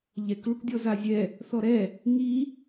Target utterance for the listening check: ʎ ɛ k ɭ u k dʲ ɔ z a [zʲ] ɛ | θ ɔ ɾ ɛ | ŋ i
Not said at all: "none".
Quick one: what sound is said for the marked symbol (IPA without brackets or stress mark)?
zʲ